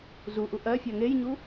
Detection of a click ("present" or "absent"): absent